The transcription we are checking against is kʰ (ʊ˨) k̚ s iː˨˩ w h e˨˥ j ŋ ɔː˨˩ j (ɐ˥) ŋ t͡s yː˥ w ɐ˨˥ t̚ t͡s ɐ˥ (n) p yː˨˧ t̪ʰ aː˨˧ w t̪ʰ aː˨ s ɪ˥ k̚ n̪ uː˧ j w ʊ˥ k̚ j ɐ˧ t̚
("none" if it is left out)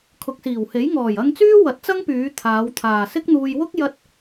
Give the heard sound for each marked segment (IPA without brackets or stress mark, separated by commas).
ʊ˨, ɐ˧, ŋ